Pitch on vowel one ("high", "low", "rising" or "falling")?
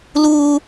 high